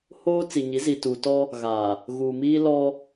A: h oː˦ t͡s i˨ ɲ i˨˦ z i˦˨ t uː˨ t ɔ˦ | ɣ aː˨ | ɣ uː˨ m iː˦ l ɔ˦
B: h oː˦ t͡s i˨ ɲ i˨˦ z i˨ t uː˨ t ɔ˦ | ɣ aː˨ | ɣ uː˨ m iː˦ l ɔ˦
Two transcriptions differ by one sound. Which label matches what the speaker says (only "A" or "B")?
B